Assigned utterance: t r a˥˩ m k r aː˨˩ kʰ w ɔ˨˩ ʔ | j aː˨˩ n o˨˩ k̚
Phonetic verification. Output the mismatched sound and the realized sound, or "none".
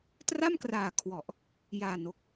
none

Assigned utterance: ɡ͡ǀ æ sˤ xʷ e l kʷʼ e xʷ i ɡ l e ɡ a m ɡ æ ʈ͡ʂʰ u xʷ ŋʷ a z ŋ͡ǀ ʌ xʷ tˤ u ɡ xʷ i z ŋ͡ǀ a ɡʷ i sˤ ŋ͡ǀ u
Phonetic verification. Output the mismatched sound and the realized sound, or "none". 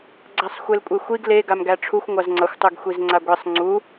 none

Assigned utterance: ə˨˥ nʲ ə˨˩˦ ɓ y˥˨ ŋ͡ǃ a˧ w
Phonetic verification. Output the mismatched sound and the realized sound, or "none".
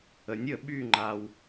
none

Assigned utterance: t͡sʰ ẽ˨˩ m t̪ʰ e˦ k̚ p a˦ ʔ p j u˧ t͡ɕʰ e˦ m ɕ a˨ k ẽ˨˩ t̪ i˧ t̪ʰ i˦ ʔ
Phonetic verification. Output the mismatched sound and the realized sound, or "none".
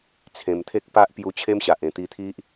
k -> ʔ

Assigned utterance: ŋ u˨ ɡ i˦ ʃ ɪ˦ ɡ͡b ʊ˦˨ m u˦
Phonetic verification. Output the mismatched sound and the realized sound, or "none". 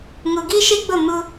none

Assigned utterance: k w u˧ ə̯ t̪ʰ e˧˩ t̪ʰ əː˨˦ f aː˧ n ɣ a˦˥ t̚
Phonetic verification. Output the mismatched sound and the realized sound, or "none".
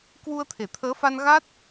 aː˧ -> a˧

